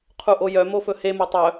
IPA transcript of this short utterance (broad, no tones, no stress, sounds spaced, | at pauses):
qʰ u ʔ o j œ m o f ɵ h e m o tˤ œ